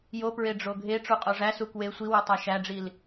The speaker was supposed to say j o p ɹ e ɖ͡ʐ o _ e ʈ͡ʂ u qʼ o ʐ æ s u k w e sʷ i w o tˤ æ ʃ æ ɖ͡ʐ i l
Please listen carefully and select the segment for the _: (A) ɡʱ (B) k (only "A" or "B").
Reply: A